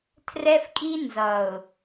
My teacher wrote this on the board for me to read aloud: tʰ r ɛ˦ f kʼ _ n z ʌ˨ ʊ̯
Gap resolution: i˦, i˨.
i˦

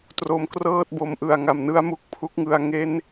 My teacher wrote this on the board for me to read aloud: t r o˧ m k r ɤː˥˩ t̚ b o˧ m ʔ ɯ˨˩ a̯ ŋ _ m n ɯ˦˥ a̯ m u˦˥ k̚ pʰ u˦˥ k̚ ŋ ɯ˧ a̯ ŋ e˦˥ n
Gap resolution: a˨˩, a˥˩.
a˨˩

